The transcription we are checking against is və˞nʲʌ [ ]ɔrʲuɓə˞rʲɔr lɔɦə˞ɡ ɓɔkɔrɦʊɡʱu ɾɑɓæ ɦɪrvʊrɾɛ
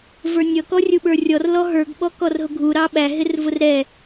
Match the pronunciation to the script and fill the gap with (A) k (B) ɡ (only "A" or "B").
A